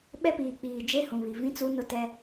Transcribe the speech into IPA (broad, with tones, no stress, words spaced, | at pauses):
ɓɛ˦piː˨k͡piː˨ d͡ʒe˦hũ˨βi˨ vĩ˦t͡su˦nʊ˦tɛ˦